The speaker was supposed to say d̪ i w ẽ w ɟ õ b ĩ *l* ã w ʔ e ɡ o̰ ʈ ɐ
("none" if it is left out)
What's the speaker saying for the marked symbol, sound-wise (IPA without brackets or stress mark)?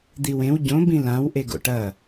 l